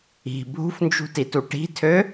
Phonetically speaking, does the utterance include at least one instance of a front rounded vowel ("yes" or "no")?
yes